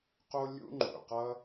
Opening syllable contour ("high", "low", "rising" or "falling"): high